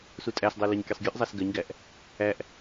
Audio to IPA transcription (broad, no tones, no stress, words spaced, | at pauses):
sutʼæsdˤɜ lɜɲkʲɜsˤɡʲʉʔzˤæs ɡɜɲɡæʔ | æʔ